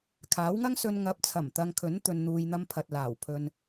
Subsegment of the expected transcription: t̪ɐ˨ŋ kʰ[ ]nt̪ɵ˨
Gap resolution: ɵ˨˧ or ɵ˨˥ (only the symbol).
ɵ˨˥